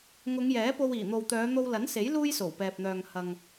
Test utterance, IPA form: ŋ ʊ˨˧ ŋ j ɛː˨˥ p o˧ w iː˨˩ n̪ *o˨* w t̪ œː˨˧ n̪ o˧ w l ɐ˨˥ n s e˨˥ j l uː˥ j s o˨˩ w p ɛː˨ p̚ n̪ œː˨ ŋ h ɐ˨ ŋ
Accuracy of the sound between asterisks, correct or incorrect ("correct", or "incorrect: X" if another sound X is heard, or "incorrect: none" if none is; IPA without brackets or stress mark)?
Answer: correct